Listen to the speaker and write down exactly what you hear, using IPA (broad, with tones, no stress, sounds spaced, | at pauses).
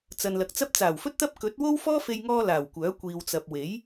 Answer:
t͡s ɐ˨ n l ɐ˨ k̚ t͡s ɐ˥ p̚ t͡s aː˨˩ w f ɵ˥ t̚ t̪ ɐ˥ p̚ k ɵ˨˥ t̚ w o˥ w f ɔː˥ f e˧ j ŋ ɔː˧ l aː˨˩ w kʷ œː˨˥ kʷ iː˨ w t͡s ɐ˨ p̚ w e˨˥ j